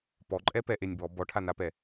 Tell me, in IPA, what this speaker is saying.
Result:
p ɔ ǃʼ ɛ p ɛ ʔ e nʲ b ɔ b ɔ ʈʰ a n a p ɛ

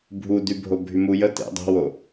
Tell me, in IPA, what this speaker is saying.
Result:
bʱ u d y bʱ o bʱ y m u j ə t ḛ dˤ ɛ̤ w o

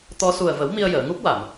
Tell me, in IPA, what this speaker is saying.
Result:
t̪ ɔ˧ s u˨˩ ə̯ v ə˨˩˦ w m i˧ ə̯ j əː˨˩˨ ŋ u˦˥ p̚ w a˨˩˨ m

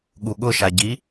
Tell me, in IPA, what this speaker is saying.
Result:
ɠ u ɠ ʊ ʃ a ɟ i

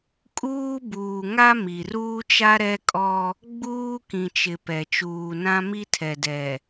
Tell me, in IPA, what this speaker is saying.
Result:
kʼ uː˦ b uː˨ ŋ a˦ m i˨ r uː˦ t͡ʃ a˦ ɾ ɛ˦ kʼ ɔ˦ | ɡ͡b uː˦ k ĩ˨ t͡ʃ ɪ˨ p ɛ˨ t͡ʃ uː˨ n ã˦ m i˦ tʰ ɛ˨ d ɛ˨

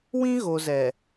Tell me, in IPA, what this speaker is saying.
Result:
w ĩ˦ ɣ o˨ z ɛ˨

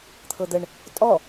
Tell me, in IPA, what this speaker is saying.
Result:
t̪ʰ ɤ d̪ ə ɳ | tʼ ɔ

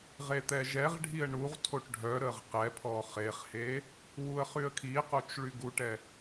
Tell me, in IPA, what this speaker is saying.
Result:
ʁ e t̪ ɛ ʒ ɛ ʁ ɖʱ i ə̯ ɳ u ʁ tʰ o ʈ ɖʱ œ ɾ ə ʁ q ɛ pʰ ɔ χ e χ h e | w u ə̯ χ y ə̯ kʰ i q o t͡ʃ ɭ y ɡ u ʈ ɛ

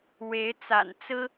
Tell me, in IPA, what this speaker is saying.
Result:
w e˨˦ ɪ̯ t͡s a̰˨˩ n t͡s ɹ̩˦

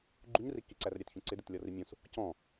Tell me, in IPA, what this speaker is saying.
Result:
ɡ͡ǃ u ɲ r i k i ǀ æ r ɾʲ æ t ç ũ ǀ ɪ d ɪ t lʲ ɔ r i mʲ ũ s | c ɔ̃

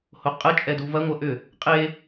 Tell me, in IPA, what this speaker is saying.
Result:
h o qʼ ə t͡ʃʼ ɛ d u v ɐ ŋʷ ɐ ʔ ʏ | qʼ e

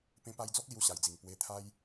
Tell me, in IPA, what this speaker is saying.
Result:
p ẽ˧ p a˧ j d͡z ɔ˦ k̚ l j u˧ ɕ a˨˩ j d͡z i˨˩ ŋ p w e˧ t̪ʰ a˦ j

